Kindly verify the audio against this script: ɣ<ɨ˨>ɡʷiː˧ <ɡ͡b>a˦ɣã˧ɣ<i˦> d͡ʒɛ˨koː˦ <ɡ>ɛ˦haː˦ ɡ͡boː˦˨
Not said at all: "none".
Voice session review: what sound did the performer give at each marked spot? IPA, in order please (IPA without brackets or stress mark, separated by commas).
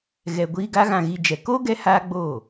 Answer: ɛ˨, ɡ, i˧, ɡ